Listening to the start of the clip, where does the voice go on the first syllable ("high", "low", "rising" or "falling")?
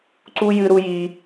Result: high